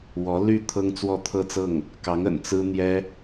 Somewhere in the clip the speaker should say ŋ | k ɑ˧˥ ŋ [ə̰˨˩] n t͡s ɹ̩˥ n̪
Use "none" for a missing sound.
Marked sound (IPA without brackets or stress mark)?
ə̰˨˩